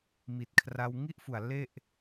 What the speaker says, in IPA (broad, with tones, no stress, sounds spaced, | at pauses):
m i˨˩ t̚ kʰ r a˧ w ŋ i˦˥ ʔ f u˨˩ a̯ l e˥˩ ʔ